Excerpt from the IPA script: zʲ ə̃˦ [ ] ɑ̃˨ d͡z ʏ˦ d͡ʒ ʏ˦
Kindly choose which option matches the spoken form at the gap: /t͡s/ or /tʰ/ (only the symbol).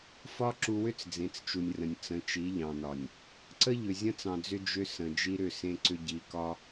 t͡s